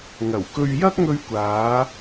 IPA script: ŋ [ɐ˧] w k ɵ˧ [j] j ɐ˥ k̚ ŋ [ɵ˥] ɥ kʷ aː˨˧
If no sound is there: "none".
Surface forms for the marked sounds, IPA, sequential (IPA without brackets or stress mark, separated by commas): ɐ˨˩, ɥ, ɵ˧